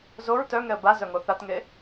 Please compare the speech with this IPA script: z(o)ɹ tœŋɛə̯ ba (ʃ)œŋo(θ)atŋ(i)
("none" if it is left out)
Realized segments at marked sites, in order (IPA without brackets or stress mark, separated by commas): o, z, θ, e